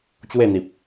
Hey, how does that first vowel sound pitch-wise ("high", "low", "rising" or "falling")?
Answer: falling